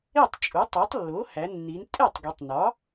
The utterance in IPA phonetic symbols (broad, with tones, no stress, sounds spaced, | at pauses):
e˥˩ tˤ t͡ʃʼ u˩˥ tˤ ɒ˩˥ tˤ lː o˩˥ h æ˩˧ nː i˩˧ n tʼ e˥˩ tˤ ɡ i˩˧ tˤ n ɒ˩˥